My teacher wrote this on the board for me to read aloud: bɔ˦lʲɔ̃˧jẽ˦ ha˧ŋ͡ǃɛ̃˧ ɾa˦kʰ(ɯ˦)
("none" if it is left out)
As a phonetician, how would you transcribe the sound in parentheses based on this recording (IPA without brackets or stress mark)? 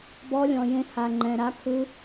ɯ˦